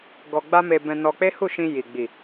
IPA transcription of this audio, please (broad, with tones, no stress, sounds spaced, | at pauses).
ɡ ɔ˧ ɡ͡b a˦ m e˧ b ɛ̃˧ n ɔ˧ k͡p e˦ h u˦˨ ʃ ĩ˧ j i˨ ɡ͡b i˨